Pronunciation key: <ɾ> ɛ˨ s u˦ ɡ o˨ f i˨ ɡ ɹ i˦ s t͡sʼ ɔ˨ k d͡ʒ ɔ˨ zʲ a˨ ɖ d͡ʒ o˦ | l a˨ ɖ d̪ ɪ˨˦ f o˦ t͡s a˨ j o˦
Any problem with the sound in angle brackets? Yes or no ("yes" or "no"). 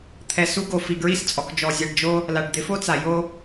yes